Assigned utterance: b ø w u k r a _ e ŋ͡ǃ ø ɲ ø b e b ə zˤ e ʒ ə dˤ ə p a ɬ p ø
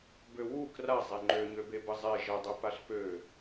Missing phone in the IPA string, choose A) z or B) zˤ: B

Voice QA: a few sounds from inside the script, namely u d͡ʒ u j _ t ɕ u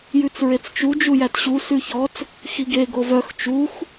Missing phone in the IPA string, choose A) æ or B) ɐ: A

